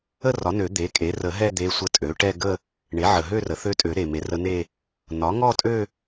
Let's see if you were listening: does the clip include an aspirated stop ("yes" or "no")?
no